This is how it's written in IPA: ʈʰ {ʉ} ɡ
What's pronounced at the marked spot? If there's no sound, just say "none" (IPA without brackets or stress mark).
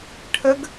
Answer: ə